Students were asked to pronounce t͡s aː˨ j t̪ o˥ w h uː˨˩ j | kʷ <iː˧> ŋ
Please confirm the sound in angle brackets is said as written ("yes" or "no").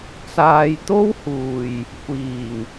no